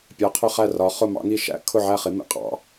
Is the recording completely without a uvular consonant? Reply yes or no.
no